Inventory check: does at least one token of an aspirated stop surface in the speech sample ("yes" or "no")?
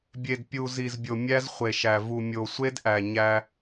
no